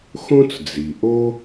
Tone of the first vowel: high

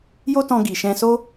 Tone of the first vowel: high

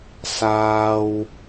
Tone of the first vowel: low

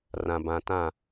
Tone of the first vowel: low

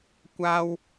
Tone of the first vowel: high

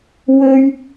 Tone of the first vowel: high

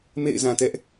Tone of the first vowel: falling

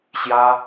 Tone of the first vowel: high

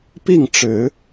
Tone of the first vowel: falling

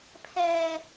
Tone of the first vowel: low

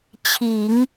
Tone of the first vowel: low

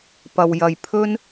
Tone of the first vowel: low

